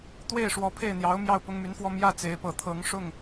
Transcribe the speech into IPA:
t̪ w e˥˩ ɪ̯ ʂ w ɔ˧˥ pʰ e˥˩ ɪ̯ n̪ j ɑ˧˥ ʊ̯ m j ɑ˥˩ ʊ̯ p ʊ˥ ŋ m y˧˥ n f w ɔ˥˧ m j ä˥˩ t͡s e˧˥ ɪ̯ p ɤ˨˩ t̪ʰ ɤ˧˥ ŋ ʂ ʊ˥˩ ŋ

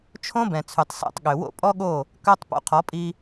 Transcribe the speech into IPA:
t͡ʃʰ õ˦ b ɛ̃˨ t͡sʰ y˨ tˤ s æ̰˦˨ tˤ ɠ ø˨ w o̰˦ pʼ ɔ˦ ɠ o˦˨ | k œ˧ tˤ p o̰˧ qʰ ɔ˨˦ pʼ i˧

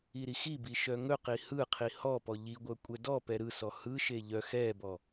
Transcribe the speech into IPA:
i ɾ i x i b i ʃ œ ŋ ɵ q i h ɯ qʰ i h ɔ p ɔ ʎ i ɡʷ œ kʷʼ ɛ d ɔ p ɛ ɾ ɯ s ɔ h ɯ ʃ e ʎ œ x ɛ b ɔ

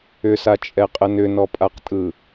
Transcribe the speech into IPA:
ʏ s a t͡ʃʼ ɛ qʼ ə n ʏ n ɔ pʼ a q tʼ ɯ

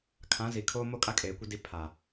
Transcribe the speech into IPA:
kʰ ã˨˦ z i˨ kʰ o˦ m o˦˨ kʼ a˦ kʼ eː˨ kʷ i˦ d i˦ pʰ a˨

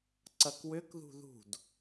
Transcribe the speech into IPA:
ǀ ɐ k w ʏ k ð ṳ ð ṳ d

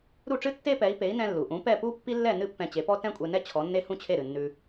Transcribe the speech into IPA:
ɾ u˥˩ ʈ͡ʂ ɨ˥ tː e˥ p ɛ˩˥ i̯ p e˩˥ i̯ n ɛ̃˧ lː u˩ ʔ ũ˩˥ p ɛ˥˩ p u˥ pː i˥ lː ɛ˥˩ n ɨ˥ pː ɛ̃˧ t͡ɕ e˩˥ p ɔ˥ t ɛ̃˥ kʷʼ e˧ n ɛ˥ t͡ɕʰ ɔ˩˥ nː e˥ h ũ˥ t͡ɕʰ e˥˩ ɾ ɨ˩ nː ʉ˧

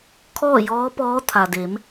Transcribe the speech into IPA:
kʰ ɔː˥˨ j ɔː˧˥ p ɔː˧˥ t̪ʰ a˩ d e˩˧ m

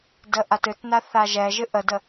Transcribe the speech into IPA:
d ə ʔ a t ɨ t n a θ a ʒ ɛ ʒ ɨ ʔ ə d ə

